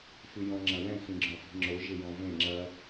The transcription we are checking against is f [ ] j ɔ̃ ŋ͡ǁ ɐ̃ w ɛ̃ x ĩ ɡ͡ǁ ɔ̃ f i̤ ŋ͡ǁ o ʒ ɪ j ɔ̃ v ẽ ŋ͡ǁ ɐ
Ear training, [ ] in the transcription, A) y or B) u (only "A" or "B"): A